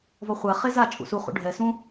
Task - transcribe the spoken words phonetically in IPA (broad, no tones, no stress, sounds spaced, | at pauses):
v ɔ χʷ a χ e z a t͡ʃʼ ṵ s u χ ṵ ɖʱ ɛ s ũ